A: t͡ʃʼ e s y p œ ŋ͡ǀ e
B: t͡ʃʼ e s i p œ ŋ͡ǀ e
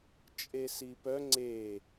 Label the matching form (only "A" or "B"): B